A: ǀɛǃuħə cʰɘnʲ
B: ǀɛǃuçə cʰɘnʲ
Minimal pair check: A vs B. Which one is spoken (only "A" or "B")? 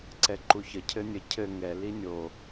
B